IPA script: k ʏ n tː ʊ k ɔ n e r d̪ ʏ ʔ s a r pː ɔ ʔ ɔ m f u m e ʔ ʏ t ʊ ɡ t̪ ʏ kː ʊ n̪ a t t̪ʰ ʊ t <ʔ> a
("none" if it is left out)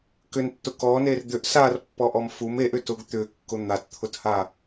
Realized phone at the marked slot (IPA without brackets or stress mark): h